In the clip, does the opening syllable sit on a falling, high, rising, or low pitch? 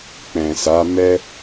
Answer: low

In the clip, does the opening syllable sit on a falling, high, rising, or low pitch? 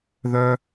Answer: high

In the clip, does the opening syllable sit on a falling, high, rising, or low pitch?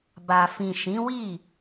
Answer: low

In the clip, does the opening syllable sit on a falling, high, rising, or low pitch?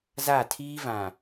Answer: falling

